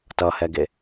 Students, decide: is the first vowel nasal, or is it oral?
oral